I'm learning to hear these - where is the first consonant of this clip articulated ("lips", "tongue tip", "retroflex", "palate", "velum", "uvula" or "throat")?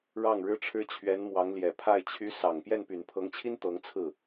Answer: retroflex